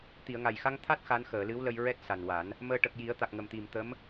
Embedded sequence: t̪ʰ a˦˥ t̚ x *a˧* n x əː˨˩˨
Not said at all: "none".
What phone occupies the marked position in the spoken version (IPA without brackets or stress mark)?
a˧˥